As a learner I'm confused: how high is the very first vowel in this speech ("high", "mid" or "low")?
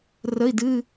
mid